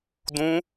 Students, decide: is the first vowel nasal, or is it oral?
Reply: nasal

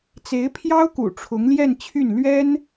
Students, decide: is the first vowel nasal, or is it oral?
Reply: oral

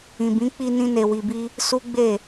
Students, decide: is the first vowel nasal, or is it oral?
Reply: nasal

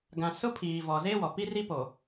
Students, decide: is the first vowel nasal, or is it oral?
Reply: nasal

